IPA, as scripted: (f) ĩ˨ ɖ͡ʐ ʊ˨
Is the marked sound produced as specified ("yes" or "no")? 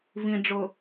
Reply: no